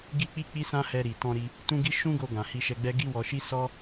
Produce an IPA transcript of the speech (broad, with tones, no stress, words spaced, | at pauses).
ɡi˦k͡pi˦k͡pi˦sã˦ hɛ˧ɾi˨tɔ̃˧ɾi˧ | tũ˦ɡi˦ ʃũ˦ɡo˧ ɡã˨hi˧ʃɛ˧ɡ͡bɛ˦ ɡi˦wɔ˧ ʃi˦sɔ˦